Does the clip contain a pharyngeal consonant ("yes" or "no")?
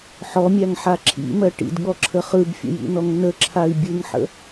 yes